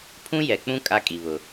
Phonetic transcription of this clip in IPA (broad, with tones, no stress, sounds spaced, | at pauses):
pʰ ũ˦ j ɛ˨ k͡p ũ˦ kʼ a˦ kʼ i˨ β ʊ˨